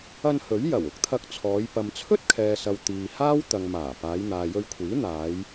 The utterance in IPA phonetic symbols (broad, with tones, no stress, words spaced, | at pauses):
ɐ˧nhɵ˨˥ɥ jɐ˨˩wʊ˨˥k̚t̪ʰɐ˧k̚t͡sʰɔː˨˧j pɐ˨mt͡sʰɵ˥t̚kʰɛː˨sɐ˨w t̪iː˨haː˥w t̪ɐ˨ŋ maː˨˩ paː˨˧jn̪aː˨jɵ˧ɥkʷʰiː˨˥ n̪aː˨˧j